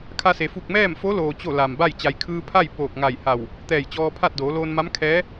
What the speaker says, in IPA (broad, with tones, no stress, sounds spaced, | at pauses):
kʰ a˧ s e˩ f u˧˩ k̚ m ɛː˥˨ m f o˧˥ l oː˩ t͡ɕ o˥˨ l a˩ m b a˥˨ j t͡ɕ a˩˧ j kʰ ɯː˧ pʰ a˥˨ j p oː˧˩ k̚ ŋ a˧˩ j h a˧˩ w | t̪ ɛː˧˩ j t͡ɕ ɔː˧ pʰ a˥˨ t̚ d oː˩˧ l oː˧ n m a˧˥ m kʰ ɛː˧˥